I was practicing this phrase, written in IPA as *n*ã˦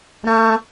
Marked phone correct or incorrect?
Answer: incorrect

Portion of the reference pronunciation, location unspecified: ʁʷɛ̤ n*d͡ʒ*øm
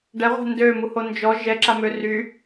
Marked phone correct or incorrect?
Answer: incorrect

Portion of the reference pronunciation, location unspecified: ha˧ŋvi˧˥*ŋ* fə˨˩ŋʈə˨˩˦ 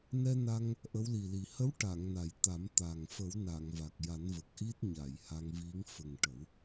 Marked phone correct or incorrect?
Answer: correct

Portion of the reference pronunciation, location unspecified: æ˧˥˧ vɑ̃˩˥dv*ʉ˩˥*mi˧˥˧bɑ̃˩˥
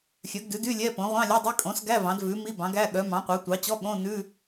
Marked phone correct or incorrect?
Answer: correct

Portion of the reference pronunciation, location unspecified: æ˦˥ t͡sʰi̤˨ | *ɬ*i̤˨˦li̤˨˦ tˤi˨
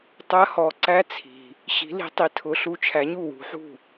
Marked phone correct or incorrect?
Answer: incorrect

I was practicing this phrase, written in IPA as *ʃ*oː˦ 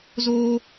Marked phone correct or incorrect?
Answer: incorrect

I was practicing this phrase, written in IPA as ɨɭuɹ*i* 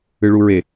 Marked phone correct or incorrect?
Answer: incorrect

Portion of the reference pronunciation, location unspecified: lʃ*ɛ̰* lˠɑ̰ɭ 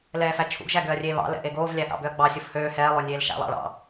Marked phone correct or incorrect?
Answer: incorrect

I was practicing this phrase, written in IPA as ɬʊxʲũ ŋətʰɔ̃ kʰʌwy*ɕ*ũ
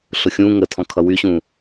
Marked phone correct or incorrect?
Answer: correct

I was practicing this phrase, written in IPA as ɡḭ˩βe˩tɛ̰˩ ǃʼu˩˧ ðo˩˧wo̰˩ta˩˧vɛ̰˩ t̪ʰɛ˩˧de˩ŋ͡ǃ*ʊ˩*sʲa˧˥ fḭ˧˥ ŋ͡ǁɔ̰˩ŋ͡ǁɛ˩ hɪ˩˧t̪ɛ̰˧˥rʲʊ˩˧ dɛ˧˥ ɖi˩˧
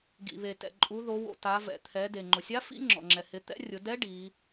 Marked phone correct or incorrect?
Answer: correct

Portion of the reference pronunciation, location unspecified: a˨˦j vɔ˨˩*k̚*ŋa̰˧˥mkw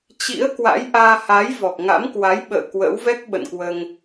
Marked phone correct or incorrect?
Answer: correct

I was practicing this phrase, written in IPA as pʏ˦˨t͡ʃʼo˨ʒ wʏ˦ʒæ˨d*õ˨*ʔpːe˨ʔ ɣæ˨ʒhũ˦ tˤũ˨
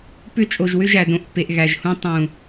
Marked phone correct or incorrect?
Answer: correct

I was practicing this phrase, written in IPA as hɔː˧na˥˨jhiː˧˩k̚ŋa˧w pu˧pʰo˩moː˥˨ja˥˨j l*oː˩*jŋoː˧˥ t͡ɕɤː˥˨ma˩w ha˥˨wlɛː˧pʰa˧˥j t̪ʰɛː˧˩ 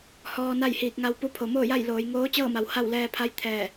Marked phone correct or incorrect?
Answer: incorrect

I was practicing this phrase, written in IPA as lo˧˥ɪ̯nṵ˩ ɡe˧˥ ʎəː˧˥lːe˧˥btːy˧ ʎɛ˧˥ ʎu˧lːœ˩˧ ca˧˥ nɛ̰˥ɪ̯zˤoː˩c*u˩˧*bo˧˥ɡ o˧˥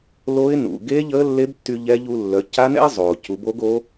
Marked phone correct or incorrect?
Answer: correct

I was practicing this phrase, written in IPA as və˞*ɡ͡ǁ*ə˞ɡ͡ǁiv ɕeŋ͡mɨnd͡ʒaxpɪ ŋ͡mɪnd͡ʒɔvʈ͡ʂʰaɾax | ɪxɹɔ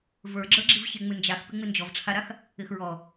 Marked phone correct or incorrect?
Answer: correct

